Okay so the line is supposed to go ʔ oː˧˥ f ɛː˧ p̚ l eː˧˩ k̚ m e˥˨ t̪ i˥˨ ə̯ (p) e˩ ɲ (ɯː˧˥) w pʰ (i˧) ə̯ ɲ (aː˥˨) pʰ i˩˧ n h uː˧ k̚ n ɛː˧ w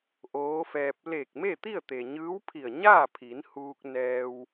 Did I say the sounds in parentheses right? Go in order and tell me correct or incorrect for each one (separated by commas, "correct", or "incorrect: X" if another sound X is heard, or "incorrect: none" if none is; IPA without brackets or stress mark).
incorrect: t̪, correct, incorrect: i˧˩, correct